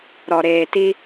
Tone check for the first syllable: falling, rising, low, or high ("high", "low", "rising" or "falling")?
low